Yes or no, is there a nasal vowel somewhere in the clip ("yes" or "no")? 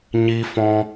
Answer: yes